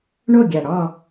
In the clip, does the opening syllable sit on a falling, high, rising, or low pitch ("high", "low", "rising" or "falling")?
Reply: falling